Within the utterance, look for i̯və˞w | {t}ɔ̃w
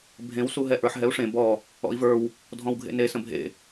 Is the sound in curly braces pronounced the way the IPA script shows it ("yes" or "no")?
no